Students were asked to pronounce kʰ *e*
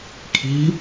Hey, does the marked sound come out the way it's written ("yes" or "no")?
no